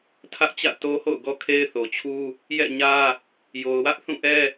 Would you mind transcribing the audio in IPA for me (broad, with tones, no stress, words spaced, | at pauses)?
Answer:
tʰä˦ʔt͡ɕä̰˦˨ to˦ ho̰˦˨ʊ̯ɡɔ˦kʰe˦ɪ̯ θo˨t͡ɕʰu˦ | jɛ̰˦˨ɲä˦ | jo˨ʊ̯wä˦ʔθũ˦˨ ʔɛ˦